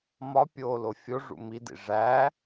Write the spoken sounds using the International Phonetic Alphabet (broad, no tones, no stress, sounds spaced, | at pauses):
m ɒ pʲ oː l o fʲ o ʐ ṵ m i d ḭ ʐ æ